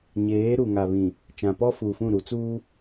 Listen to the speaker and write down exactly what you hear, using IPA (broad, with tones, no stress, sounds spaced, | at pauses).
ɲ eː˨˦ ɾ u˨ ŋ a˨ β ĩ˨ | t͡ʃ ã˨ p ɔ˦ f uː˨ f ũ˦˨ ɾ u˨ t͡s uː˦